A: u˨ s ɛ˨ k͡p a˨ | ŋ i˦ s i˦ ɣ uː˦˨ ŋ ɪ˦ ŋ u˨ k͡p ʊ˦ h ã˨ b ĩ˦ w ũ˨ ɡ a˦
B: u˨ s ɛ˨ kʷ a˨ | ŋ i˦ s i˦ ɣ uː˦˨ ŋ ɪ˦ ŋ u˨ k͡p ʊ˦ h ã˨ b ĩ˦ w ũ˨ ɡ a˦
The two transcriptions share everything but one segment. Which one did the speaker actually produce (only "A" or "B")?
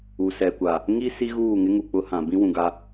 B